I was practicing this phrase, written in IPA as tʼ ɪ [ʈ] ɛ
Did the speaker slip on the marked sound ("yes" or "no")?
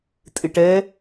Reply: no